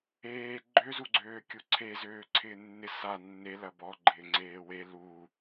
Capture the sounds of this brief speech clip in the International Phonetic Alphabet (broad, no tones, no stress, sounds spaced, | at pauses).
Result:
eː ɡ͡ǃ ø z u ɡ͡ǀ øː kʲ u ǀʰ e z øː ǀʰ ɪː nː ɪ s a nː e l ɐ b ɔ ɡ͡ǃ ɪː ŋ͡ǀ eː w e l u